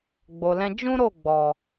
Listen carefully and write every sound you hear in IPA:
ɡ͡bo˨lɛ̃˧ d͡ʒũ˦ ɾo˦˨ɡ͡bɔ˨

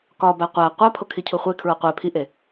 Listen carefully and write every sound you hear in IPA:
kɒbæ qʷæ qʷæpʰo kʰicʰuχʷekʰɹo qʷe pʰiʔe

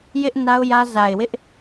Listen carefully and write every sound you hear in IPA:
jɪ˦ʔ na˦ʊ̯jä˦ za˨ɪ̯wɪ˦ʔ

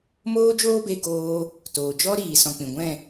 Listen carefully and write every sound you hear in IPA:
moː˦d͡ʒoː˦be˧ ɡoː˧ | toː˨ d͡ʒɔ˦ɾiː˨ sɔ̃˨k͡pĩ˨ ɡʷɛ̃˦˨

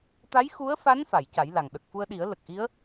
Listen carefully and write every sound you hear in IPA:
t̪a˧˥jxu˧˥ə̯fa˧˥n fa˨˩˨jca˨˩˦jla˨˩ŋ ɗə˨˩k̚fu˧ə̯ɗi˨˩˦ə̯ lə˨˩k̚ʔi˧˥ə̯

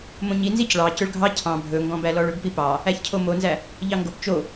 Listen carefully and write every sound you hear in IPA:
mõɲi nzicɭɑ cɵɭɡʱɑ cʰɑ̃ bʱɵŋɡɔ̃bælɔɭ ɵbpipɑ | æçcʰomonzæ | ʎɑŋɡop t͡ʃo

